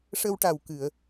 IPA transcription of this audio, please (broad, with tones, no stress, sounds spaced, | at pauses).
ʂ ə˧ w ʈ a˨˩ w k ɨ˨˩˨ ə̯